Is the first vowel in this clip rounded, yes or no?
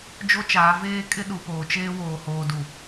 yes